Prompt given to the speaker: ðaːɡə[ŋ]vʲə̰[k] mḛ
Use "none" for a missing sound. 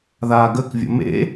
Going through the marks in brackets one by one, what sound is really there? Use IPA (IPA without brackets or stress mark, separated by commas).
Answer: k, none